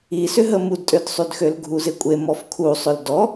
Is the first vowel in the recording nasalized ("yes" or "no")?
no